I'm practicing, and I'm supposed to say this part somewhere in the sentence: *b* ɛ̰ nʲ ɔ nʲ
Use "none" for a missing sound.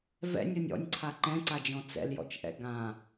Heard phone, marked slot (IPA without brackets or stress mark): v